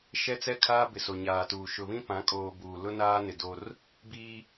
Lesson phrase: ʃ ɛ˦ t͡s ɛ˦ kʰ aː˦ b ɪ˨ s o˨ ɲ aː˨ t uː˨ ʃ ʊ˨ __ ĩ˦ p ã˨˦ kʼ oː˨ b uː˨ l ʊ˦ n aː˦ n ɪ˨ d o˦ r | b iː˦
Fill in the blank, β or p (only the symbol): β